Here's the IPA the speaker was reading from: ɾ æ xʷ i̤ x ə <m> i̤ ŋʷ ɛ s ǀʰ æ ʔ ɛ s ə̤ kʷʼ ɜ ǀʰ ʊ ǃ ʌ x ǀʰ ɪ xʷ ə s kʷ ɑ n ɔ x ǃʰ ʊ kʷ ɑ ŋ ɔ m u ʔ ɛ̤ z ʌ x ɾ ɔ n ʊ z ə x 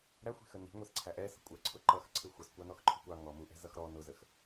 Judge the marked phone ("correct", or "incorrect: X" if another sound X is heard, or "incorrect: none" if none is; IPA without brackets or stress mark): incorrect: n